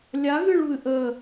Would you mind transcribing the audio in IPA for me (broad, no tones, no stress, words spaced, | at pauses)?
lʲaɣɨɭβɨ ʔə